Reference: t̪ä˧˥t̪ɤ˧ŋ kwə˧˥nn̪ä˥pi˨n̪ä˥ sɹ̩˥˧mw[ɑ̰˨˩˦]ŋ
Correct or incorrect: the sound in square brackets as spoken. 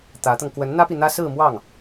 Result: incorrect: ɑ˥˩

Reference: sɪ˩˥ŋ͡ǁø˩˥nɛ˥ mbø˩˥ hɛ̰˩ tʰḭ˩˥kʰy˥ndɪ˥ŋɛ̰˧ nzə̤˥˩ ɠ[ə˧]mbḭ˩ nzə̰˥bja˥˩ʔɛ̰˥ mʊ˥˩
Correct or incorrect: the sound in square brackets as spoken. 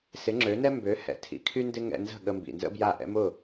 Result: correct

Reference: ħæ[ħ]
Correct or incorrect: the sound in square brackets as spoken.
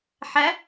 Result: incorrect: none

